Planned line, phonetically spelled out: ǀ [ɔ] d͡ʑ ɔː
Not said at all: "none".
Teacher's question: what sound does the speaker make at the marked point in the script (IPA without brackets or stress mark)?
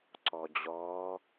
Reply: ɔ